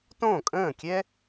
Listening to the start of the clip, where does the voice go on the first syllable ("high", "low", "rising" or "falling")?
falling